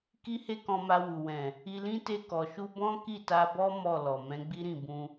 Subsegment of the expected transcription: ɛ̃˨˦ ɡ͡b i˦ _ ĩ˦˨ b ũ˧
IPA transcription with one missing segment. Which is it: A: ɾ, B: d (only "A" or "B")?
A